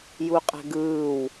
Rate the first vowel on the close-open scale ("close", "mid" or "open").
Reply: close